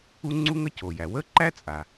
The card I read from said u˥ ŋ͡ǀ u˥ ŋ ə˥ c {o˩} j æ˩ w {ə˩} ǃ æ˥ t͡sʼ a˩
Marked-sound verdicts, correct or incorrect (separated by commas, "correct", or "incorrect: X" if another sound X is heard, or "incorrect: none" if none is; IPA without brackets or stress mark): correct, incorrect: ə˥